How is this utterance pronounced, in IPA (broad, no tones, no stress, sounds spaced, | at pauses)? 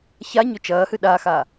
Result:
ç a ɲ ɵ t͡ʃ ɐː h ɨ ɗ a x a